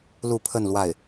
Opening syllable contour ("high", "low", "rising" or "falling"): falling